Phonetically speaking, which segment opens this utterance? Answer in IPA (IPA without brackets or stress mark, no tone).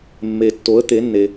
mː